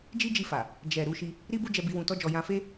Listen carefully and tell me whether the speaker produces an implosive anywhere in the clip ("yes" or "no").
no